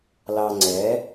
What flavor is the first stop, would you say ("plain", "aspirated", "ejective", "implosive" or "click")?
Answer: click